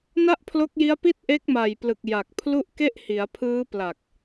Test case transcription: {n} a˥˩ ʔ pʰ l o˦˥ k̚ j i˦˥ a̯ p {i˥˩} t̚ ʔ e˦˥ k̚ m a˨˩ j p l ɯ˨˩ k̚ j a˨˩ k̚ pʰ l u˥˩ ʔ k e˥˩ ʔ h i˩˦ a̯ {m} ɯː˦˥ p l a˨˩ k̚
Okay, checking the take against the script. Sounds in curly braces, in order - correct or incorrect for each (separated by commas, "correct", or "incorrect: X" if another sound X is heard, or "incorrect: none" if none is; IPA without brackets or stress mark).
correct, correct, incorrect: pʰ